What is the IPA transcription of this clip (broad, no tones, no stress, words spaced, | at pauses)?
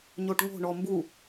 ɲoʈŋo̤ ɳɔmbu